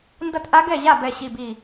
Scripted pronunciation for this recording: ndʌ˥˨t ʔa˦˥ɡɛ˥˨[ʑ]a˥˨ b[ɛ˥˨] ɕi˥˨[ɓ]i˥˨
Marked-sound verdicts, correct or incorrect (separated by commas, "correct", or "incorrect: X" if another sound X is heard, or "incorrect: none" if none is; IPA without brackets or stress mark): correct, correct, incorrect: b